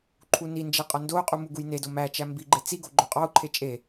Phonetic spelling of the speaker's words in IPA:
ǃʰ u n i n d͡ʒ e qʼ ɒ n d o u̯ qʼ u m u ɡ u j n e d o m æ t͡ʃ æ m b i ɡ͡ǃ e t͡s i ɡ o ɡ͡ǃ o qʼ ɒ u̯ ǃʰ e t͡ʃʼ e

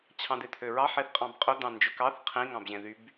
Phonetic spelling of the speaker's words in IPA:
t͡ɕʰ ɑ̃ d̪ e t̪ʰ ø ɹ ɑ ħ e θ qʼ ɑ̃ b qʼ ɵ d̪ ɑ̃ n d͡ʒ ɵ k ɑ θ qʰ ĩ ŋ ɑ̃ b ʑ ẽ ð y b

